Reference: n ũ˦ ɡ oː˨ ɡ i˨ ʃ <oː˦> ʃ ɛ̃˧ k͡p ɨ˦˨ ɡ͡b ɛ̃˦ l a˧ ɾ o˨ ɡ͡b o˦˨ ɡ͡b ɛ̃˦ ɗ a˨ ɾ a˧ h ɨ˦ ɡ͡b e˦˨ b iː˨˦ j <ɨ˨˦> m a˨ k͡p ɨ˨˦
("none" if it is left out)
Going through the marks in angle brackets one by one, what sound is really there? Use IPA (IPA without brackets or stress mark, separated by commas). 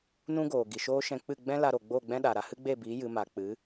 oː˦, ɨ˨˦